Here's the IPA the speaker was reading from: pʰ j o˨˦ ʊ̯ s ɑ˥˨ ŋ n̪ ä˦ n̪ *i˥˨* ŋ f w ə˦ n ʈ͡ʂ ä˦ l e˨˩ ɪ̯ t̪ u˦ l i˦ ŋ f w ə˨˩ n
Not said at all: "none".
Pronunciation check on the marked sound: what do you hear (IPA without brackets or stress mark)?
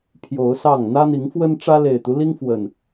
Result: i˨˦